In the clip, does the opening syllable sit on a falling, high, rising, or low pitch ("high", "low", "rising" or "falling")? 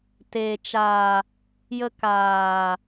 low